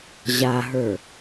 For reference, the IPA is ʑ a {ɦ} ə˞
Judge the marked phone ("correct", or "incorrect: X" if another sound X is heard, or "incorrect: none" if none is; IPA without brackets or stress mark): correct